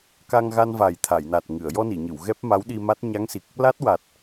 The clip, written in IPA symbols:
ka˧ŋɣa˧nva˨˩j t̪ʰa˨˩˨jna˨˩t̚ŋɨ˨˩˨ə̯ jɔ˧ni˨˩˨ɲɨ˨˩˨w ɣɛ˦˥p̚ma˧˥wɗi˧ma˦˥t̚ ɲa˧˥ŋsi˨˩k̚ | la˦˥t̚wa˨˩t̚

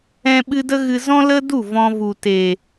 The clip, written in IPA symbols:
ɛ̃˦ɓɨ˦ də˦ɣɨ˧ zɔ̃˦ lə˦du˦˨ vɔ̃˧vu˨te˨

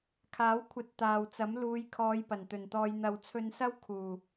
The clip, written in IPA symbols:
kʰaː˨˥wkʷʰɐ˧t̚ t̪aː˨wt͡sɐ˨˥m luː˨˧jkʰɔː˨˧j pɐ˨˩nt̪ɵ˨˩nt̪ɔː˧j n̪ɐ˨wt͡sʰɵ˧nsɐ˥w kʰuː˨˩

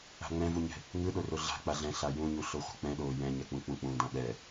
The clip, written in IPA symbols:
a̤ŋ͡mɛ̃vuɲɛ̤ | ŋɯɗo roɮa̤ k͡paɮɛ̃ ɬajũɲu ɬoχʷɛ̤k͡pɛ̃ɗoː jɛ̃ɲɛk͡pũ k͡pũk͡pũːdãɓɛ

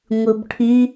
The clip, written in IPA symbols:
ŋʷɯbʈʰy

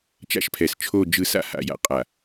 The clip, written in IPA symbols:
t͡ʃa̰˦ʃpʰɛ˨s t͡ʃʰo˦˨d͡ʒɯ˦˨sa̰˦ ha̰˨ja̰˨qʼa˨

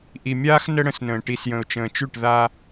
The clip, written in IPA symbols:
ʔi˨mʲaː˦x nə˦ɽə̃˨˦snə̃ː˨ ʈi˨sjə̃˨ʊ̯t͡ʃə̃ː˨t͡ʃʉ˦˨ʈ ða˦

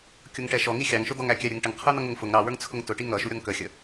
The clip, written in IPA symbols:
kʲʊŋʈɛʃɔŋi xʲɑŋʃʊ d̪ɔŋækʲæɾʲəŋ ʈəŋqʰə˞n̪ʌ ŋʊŋfʊŋ ɾɑwə˞ŋt͡sʰʊŋ tʊʈi ŋʌʃu ɾʲɔŋkəxʲə

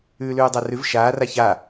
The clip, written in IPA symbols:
ʉːlʉːdˤarʉv ʃaːra ça

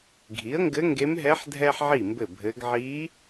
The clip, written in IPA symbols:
ɡʱi˩˥ə̯ŋɡɘ˧˥ŋɡe˧˥mɦɛ˧˥ħ dʱɛ˥ħʕi˥˩mbɘ˥˩bʱɘ˧˥ɡ ʕi˧˥

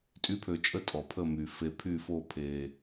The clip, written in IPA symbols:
tʼy˧˥pʰø˨t͡ʃʼə˧˥ tʼɔ˨pʰə˦˨my˨ fe˨pʰy˦˨fo˦˨ pʰe˨

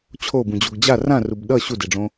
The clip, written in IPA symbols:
t͡ɕʰobũd͡ʑoɡ d͡ʑa rãrub ɗʌ ɕudeɖ͡ʐõ

